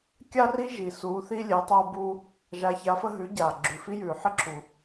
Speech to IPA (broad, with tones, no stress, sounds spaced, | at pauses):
kʲ a˧ r i˧ ʒ i˩ s uː˩˧ θ i˧ lʲ e˩˧ tˤ oː˧ b uː˧ | ʒ a˩˧ ç a˩˧ f ə˧ ɦ ʉ˩˧ ɟ aː˩ ɡ͡ǁ ʉ˩ f i˧ j ʉː˩ ħ ɪ˧ ǁʰ u˩